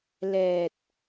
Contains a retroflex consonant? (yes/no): no